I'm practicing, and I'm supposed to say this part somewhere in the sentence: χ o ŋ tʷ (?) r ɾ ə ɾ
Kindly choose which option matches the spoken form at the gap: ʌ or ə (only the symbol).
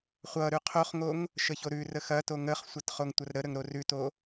ʌ